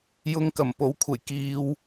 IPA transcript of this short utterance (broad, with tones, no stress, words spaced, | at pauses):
jʊ˧ŋ kɐ˨˩mpo˨˥wkʷʰɐ˨˩j kiː˧w